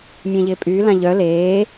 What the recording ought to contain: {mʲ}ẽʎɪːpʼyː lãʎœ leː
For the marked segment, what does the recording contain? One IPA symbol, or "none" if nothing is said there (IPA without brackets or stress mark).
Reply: mʲ